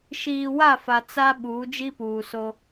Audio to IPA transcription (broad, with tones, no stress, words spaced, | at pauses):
ʃiː˨wa˦˨fa˨ t͡sa˦ ɓuː˨˦d͡ʒi˦ puː˨so˦